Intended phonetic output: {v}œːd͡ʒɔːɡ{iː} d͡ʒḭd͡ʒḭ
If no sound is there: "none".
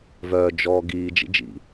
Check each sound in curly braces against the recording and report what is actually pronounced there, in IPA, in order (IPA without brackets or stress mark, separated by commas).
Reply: v, iː